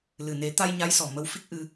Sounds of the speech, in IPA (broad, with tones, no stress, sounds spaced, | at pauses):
l ɨ˨˩ n e˨˩˦ t̪ a˧ j ɲ a˧˥ j s ɔ˨˩ m ə˧ w f i˦˥ k̚ ʔ ɨ˧